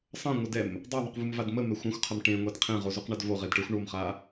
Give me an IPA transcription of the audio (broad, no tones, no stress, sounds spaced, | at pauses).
sˤ ɐ̃ ŋʷ ə d ɛ m | dˤ o ðˤ u q v u m v a d m ə m ɛ xʷ ã xʷ qʰ ɐ m ʈ ẽ ŋʷ ɛ d qʰ ẽ ʁ o z u q ɳ a d v o ʁ e d ʈ ə˞ xʷ ɳ o m χ a